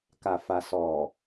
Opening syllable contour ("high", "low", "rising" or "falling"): low